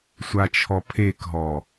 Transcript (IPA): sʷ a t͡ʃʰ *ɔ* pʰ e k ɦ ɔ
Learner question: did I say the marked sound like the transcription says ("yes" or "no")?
yes